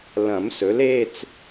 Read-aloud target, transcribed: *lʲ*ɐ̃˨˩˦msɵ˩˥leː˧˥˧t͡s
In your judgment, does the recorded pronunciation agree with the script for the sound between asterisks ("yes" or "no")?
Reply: no